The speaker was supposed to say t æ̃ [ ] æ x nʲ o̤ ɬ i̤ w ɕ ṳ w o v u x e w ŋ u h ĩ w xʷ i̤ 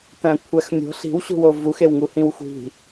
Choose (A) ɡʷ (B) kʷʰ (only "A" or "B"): B